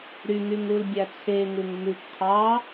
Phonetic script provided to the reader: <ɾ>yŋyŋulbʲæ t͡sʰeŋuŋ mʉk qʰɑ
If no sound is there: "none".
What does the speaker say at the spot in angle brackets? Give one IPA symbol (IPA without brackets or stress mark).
ɾ